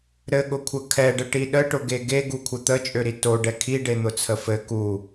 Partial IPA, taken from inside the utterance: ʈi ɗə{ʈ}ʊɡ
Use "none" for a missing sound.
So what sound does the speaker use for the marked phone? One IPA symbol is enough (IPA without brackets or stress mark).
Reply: ʈ